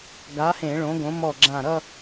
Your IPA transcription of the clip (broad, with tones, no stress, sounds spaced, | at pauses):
ɡ a˨˥ h ẽ˧˩˧ ɭ õ˨˥ ɡ õ˨˥ m ɔ˧˩ ɡ͡ǁ ã˧˩ ɾ ʌ˥˧